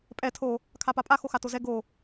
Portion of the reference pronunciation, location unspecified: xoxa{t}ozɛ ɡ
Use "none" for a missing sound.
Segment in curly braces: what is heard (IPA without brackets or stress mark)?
t